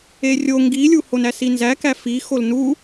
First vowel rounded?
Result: no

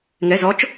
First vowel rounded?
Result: no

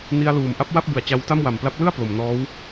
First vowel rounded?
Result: no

